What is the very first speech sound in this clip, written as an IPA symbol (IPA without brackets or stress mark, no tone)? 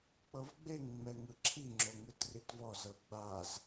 k͡p